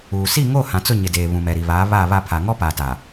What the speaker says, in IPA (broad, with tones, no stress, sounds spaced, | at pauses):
uː˨ s i˦˨ ŋ o˦˨ h ã˨ t͡s ʊ˦˨ ɲ ɪ˨ d eː˨ β ũ˨ m ɛ˨ ɾ i˨ β aː˨˦ β aː˦˨ β a˦˨ pʰ a˨ ŋ ɔ˦ p a˨ t a˨